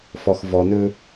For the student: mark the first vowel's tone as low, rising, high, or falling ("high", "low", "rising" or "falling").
low